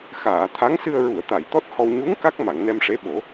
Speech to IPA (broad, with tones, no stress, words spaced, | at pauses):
xaː˨˩˨t̪ʰa˧˥ŋsɨ˧ə̯ ɹu˨˩˨ə̯t̪a˨˩˨j t̪ɔ˦˥t̚hɔ˧w ɲu˧˥ŋ ka˦˥k̚ma˨˩˨ŋnɛ˧mʂe˧˥ ɓo˨˩˦